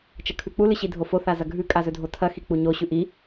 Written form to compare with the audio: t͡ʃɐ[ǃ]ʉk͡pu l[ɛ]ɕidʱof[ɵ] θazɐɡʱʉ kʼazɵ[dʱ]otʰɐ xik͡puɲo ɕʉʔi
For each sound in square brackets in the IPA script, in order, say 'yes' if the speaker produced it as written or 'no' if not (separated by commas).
no, no, no, yes